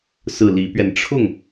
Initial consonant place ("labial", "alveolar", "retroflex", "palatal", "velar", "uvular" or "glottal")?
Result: alveolar